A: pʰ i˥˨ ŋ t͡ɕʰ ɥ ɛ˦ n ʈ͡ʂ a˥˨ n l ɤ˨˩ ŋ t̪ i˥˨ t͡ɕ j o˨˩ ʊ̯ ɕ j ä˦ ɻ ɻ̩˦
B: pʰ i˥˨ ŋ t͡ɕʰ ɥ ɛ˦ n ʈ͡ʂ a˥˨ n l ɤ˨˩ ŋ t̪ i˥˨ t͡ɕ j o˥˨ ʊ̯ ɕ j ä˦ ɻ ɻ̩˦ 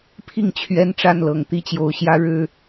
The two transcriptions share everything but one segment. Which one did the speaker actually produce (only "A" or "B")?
A